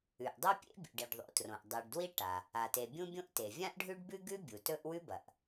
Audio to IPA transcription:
ʉ˩ ʔ dˤ ʉ˥ pʲ ḛ˥ bʲ ṵ˩ ɖ i˩ ɖ ðˤ o̰˩ t r õ˩ ʔ dˤ i˩ ɖ d w i˥ ʈ a˩ | a˩ t e˩ bʲ ũ˥ bʲ õ˥ ʔ t e˩ vʲ ã˥ ʔ ɖʱ ʉ˥ ɖ b ʉ˥ ɡ ʉ˥ bʲ u˩ t ɵ˥ ʔ w ʉ˥ b ɐ˩ ʔ

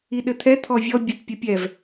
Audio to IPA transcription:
i ɗ ɘ t̪ʰ ɛ t̪ʰ ɔ vʲ ɔ bʲ ɘ t pʲ ɘ pʲ ɛ v

